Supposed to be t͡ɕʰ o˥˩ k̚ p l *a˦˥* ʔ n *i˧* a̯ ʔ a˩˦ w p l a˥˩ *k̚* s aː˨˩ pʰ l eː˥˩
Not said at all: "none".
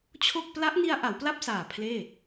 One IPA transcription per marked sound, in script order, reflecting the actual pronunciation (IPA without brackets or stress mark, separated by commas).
a˦˥, i˧, p̚